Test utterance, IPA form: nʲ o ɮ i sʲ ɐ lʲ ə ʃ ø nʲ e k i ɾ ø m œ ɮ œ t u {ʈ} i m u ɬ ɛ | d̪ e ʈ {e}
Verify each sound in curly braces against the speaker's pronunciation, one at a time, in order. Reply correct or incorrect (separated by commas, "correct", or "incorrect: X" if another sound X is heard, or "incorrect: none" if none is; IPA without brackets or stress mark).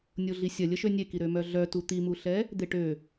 incorrect: t̪, incorrect: ø